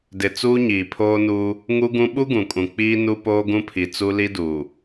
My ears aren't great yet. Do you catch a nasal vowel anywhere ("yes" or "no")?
yes